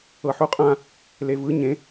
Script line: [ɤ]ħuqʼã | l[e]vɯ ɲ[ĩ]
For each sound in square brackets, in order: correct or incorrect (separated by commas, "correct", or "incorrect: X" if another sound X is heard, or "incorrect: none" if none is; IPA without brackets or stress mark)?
correct, correct, incorrect: ẽ